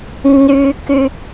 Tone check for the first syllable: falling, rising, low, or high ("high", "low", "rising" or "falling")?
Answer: low